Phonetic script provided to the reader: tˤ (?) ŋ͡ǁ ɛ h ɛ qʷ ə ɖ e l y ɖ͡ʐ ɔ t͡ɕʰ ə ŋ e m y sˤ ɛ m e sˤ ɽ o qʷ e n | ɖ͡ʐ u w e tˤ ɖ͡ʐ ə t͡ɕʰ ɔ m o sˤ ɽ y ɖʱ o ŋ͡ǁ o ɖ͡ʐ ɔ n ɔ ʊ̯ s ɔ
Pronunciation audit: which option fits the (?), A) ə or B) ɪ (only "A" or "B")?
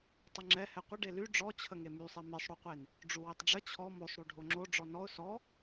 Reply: A